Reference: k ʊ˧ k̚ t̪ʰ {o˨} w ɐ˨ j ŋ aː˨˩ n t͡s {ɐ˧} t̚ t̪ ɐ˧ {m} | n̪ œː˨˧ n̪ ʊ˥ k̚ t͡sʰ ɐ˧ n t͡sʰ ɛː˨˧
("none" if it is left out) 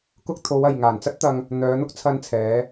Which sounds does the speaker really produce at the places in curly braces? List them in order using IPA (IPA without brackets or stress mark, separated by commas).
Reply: o˨˧, ɐ˥, ŋ